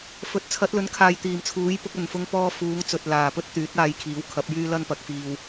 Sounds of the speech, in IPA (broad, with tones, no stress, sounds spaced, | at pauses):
f ɵ˨˥ t̚ t͡sʰ ɐ˨˥ t̚ l ɵ˨˥ n kʰ aː˨ j t̪ iː˨ m t͡sʰ uː˨˥ j p ʊ˨˥ k̚ ɐ˨ n f ʊ˥ ŋ p ɔː˥ f uː˨˧ ŋ t͡s ɵ˨ t̚ l aː˨ p ɵ˥ t̚ t̪ yː˨˥ t̚ aː˨˧ j kʰ iː˨˥ w kʰ ɐ˨˥ p̚ j yː˥ l ɐ˥ n p ɐ˨˥ k̚ f iː˧ w